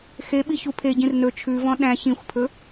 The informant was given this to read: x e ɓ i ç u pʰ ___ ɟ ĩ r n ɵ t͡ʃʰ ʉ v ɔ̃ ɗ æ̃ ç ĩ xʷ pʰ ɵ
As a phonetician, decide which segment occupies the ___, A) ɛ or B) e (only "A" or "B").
B